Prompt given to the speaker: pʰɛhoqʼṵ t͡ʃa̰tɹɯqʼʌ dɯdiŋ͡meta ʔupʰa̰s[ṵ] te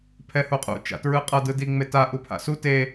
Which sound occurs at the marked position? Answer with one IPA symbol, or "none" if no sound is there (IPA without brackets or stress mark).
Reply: u